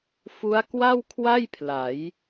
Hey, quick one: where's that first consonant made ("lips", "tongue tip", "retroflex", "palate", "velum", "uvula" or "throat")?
lips